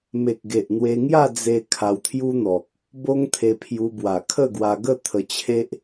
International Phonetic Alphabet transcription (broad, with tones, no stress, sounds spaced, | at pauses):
m e˨ k̚ ɡ e˨ ʔ n̪ w e˧ ŋ j a˥˧ d͡z e˧ kʰ a˧ w t̪ʰ j u˦ n̪ ɔ˨ k̚ | b o˦ ŋ t̪ʰ e˧ pʰ j u˧ b w a˨˩ kʰ ə˥˧ ɡ w a˧ ɡ ə˥˧ t̪ʰ ə˧ t͡ɕʰ e˦ ʔ